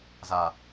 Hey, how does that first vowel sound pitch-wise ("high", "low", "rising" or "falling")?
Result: low